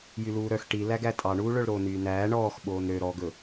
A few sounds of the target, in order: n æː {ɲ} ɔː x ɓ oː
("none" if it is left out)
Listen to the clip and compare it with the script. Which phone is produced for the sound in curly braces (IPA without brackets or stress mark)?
ɳ